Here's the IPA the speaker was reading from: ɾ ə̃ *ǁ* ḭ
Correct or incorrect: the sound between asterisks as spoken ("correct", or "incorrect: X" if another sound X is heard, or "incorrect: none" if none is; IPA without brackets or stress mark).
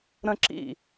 correct